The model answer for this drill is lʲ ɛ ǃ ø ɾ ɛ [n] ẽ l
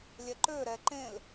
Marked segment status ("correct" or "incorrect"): incorrect